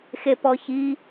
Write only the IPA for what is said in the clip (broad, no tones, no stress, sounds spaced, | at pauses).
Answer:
x e p ɔ ç i